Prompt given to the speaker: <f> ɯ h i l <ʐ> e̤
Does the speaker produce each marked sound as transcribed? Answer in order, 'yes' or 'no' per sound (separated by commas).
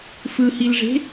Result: yes, yes